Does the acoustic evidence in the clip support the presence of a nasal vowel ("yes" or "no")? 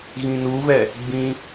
yes